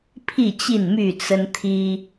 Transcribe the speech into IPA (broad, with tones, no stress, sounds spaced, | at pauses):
pʰ i˥˨ t͡ɕ i˥˨ n m y˥˨ t͡s ə˦ n t̪ʰ i˦